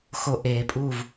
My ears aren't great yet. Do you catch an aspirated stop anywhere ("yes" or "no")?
no